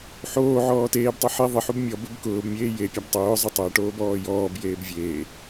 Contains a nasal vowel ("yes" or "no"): no